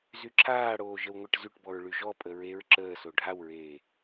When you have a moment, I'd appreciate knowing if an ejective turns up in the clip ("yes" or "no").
yes